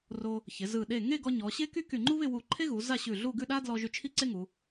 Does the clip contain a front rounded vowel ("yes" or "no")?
yes